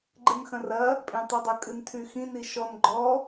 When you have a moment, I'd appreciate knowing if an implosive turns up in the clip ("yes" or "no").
no